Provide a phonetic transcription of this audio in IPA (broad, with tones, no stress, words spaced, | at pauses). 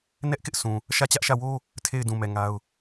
nɛ˦ʔkɪ˦ʔ sʰũ˨ | ʃä˦˨t͡ɕä˦ʔʃä˦˨ wo˦ | tʰe˦˨ɪ̯dũ˨mɛ˨ ŋa˦ʊ̯